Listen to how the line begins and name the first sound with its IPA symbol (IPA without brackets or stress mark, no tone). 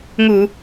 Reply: ŋ